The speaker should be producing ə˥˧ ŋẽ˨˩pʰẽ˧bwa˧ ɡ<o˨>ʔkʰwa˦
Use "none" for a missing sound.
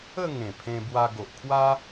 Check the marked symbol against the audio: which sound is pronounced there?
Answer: o˨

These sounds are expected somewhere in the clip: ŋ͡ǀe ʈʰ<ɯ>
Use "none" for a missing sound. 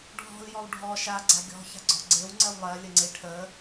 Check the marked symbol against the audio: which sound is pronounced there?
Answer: ə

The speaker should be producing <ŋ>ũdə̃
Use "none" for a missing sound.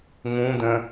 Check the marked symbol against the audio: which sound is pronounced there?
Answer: ŋ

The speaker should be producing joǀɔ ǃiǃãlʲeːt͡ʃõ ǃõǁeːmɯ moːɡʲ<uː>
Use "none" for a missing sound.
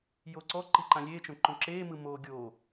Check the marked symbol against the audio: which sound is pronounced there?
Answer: oː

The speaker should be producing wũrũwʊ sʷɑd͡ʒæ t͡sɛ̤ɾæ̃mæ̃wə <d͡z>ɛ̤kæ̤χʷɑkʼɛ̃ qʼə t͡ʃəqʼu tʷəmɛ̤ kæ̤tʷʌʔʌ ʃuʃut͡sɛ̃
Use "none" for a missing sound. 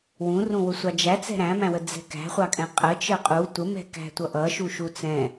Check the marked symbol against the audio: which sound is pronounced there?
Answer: d͡z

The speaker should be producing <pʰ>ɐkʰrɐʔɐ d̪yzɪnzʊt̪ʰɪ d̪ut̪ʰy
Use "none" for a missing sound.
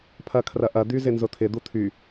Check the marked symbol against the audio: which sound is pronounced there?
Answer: pʰ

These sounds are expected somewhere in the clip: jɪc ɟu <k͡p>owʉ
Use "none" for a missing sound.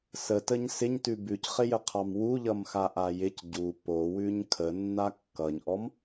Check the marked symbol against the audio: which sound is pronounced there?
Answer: p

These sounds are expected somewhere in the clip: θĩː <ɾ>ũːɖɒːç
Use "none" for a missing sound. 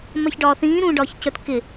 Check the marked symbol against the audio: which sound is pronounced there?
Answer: ɾ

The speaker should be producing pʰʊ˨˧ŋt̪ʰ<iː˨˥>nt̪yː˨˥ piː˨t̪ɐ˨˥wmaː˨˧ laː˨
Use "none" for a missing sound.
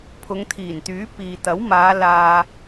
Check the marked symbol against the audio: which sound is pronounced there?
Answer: iː˨˩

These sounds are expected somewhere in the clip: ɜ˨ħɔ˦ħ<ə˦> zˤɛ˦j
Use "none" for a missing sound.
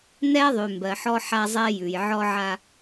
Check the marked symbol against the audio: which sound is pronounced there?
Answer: a˦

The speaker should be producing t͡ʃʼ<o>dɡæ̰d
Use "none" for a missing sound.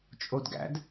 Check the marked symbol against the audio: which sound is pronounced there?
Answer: o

